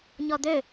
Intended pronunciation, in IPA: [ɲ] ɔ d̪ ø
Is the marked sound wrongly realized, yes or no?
no